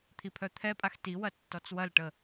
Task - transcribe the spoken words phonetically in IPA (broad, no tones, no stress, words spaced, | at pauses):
t̪ʰipʰœt̪ʰɛpʼax tiwɐ tːɔt͡swɐlʈə